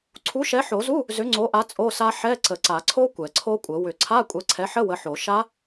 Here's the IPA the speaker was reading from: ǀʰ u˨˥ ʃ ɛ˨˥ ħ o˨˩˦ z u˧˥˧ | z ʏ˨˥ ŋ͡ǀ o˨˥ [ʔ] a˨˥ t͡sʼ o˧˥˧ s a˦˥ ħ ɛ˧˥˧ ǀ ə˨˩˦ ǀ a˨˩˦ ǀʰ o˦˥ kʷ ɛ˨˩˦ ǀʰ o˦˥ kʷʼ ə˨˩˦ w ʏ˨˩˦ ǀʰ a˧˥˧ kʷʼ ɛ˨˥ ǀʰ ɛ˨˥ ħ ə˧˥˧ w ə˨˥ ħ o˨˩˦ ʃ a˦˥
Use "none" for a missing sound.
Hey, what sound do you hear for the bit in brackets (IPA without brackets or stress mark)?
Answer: ʔ